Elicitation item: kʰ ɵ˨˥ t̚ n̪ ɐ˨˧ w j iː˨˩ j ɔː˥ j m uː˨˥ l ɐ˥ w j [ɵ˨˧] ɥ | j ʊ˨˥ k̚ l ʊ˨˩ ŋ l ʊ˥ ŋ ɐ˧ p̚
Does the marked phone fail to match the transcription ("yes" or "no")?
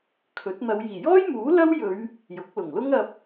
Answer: no